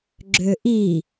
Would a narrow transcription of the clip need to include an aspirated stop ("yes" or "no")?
no